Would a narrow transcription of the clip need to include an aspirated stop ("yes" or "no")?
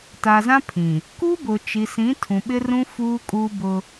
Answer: yes